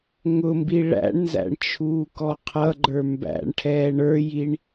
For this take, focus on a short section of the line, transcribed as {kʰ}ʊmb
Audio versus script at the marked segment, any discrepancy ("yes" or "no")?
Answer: yes